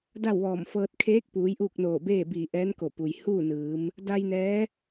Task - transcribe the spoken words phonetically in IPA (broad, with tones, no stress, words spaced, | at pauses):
da˥˨wʋɔː˧˩mfɤː˧t̚ kʰeː˧˥k̚puː˩˧j ʔuː˥˨k̚noː˧˩beː˥˨biː˧˩ ʔɛː˧˥nko˧˩pu˩j huː˥˨nɯː˩˧m | da˧j nɛː˧˥